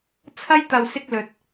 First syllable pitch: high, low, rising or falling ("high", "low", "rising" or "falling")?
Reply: high